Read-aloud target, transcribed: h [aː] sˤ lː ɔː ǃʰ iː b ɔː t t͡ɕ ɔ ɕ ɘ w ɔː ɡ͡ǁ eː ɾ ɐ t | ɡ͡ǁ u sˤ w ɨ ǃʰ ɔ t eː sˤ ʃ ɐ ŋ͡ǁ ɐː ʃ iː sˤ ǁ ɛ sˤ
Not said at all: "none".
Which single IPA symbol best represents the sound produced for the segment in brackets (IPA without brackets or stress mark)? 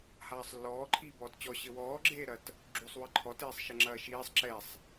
aː